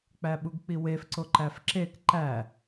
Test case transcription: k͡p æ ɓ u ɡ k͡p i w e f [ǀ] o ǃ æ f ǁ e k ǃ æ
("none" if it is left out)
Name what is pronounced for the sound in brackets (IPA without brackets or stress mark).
ǀ